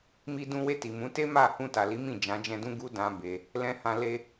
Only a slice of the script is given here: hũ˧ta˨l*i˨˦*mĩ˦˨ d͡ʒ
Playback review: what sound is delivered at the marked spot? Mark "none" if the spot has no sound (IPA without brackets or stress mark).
i˨˦